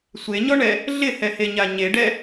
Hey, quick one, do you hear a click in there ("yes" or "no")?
no